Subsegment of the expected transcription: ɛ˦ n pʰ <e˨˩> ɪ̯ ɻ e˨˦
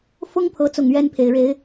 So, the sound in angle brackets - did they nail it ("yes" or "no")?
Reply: yes